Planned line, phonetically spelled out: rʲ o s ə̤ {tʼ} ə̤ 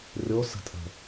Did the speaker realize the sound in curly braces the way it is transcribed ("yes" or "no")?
yes